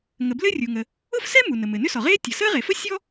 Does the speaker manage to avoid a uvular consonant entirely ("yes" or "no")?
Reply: no